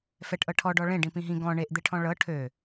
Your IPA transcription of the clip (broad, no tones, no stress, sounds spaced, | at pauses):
f ɛ ʈ ʔ ɤ ʈʰ ɔ ɖ ɔ ɭ ẽ ɖ ĩ p ĩ ɦ ĩ ɡ ɔ̃ ɳ e ʔ d̪ e ʈʰ ɔ̃ ɭ ɤ ʈʰ ø